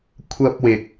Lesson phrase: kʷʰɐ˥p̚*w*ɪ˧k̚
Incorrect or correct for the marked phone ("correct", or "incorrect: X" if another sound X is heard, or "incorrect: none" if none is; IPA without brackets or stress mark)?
correct